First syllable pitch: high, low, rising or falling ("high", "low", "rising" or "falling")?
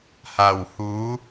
low